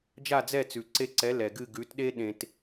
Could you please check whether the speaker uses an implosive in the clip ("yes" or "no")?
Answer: yes